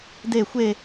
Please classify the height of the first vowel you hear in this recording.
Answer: mid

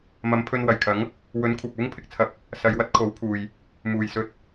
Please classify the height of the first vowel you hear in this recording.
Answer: low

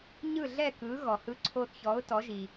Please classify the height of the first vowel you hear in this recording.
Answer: high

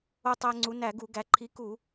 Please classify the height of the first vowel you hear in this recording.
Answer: mid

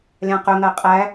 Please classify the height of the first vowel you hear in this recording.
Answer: low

